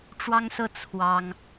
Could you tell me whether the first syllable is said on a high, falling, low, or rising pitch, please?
high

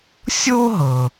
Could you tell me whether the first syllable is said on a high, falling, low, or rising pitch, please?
high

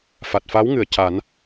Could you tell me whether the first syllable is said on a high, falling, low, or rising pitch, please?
low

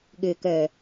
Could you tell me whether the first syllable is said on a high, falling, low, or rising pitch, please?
low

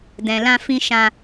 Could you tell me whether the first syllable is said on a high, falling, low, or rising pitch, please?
low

